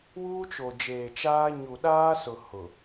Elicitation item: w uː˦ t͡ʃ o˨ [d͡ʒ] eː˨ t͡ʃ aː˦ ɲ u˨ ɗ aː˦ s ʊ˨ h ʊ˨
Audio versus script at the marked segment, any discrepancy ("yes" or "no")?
no